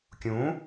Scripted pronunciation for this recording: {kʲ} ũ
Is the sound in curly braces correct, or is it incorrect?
correct